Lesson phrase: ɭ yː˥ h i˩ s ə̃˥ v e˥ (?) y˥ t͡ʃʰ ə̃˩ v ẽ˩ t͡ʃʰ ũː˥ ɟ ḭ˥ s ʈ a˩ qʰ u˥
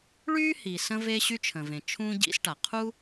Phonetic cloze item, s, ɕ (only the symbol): ɕ